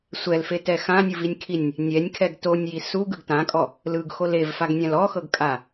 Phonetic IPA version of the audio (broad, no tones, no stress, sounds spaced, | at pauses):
sʷ ɛ l f e t ɛ x ã nʲ ɯ v i nʲ kʰ i nʲ | nʲ ɛ nʲ kʰ ɛ ɡ t o nʲ j i s u ɡ ɯ ɡ t ã kʼ ɔ | l ɯ ɡ x o l e v f a ɡ nʲ ã l ɔ x ɤ ɡ kʼ a